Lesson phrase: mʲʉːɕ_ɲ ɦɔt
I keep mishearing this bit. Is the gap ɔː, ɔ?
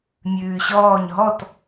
ɔː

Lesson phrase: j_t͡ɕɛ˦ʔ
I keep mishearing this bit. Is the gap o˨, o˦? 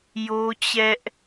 o˦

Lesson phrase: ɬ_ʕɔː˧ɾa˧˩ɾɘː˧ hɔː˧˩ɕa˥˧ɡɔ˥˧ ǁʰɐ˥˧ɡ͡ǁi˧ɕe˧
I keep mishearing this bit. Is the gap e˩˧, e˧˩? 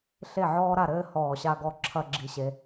e˧˩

